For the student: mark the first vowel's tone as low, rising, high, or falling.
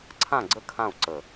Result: falling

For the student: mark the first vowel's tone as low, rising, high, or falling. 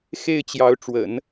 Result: falling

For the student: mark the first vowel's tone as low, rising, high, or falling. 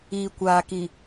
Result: low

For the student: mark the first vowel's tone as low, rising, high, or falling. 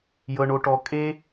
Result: low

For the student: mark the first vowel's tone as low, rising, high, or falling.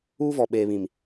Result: high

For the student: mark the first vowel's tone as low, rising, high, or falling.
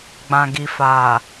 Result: low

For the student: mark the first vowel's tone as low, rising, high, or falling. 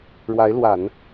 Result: rising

